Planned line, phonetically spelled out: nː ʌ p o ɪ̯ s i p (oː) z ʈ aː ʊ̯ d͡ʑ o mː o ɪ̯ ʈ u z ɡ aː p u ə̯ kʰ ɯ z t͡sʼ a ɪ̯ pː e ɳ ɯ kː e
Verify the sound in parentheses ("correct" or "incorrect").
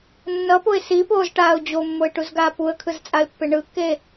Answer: correct